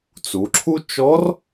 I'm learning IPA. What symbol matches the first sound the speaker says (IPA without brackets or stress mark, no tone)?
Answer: t͡s